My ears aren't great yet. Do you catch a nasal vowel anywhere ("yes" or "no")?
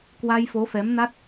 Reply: no